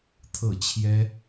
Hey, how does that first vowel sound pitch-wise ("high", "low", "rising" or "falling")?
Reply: falling